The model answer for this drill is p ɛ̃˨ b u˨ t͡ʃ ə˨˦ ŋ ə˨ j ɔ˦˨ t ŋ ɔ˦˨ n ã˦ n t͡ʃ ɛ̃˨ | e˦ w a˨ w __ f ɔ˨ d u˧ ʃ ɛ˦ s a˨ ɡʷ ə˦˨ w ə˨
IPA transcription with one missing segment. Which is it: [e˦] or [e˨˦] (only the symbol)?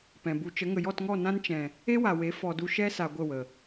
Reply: e˨˦